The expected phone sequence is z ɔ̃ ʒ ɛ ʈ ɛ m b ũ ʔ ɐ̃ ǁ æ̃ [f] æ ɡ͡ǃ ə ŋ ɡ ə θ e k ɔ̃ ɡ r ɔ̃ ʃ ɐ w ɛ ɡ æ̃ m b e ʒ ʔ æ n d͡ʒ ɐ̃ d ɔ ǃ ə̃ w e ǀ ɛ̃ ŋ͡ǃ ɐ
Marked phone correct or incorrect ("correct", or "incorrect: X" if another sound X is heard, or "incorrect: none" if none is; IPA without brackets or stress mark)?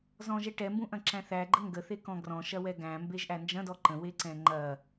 incorrect: θ